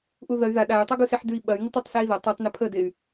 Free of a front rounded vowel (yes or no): no